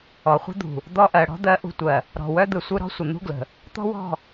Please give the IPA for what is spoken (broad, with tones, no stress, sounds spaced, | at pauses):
ɔ˨ χʷ ə̤˦ d̪ ṳ˨ | d̪ ɔ˦ ʔ ɜ˨ ɽ ɔ̤˦ d̪ ɜ˨˦ ʔ ṳ˨ tʷ ɜ˨ | ɾ ɔ̤˨ w œ˦ d̪ ɯ˨ sʷ ɯ˦ ɾ ɔ̤˦ sʷ ə˨ n̪ ṳ˦ ɡ l ə̤˨ | t̪ ɔ̤˦ w ɔ̤˦˨